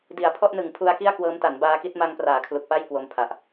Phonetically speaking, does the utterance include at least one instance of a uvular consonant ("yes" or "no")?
no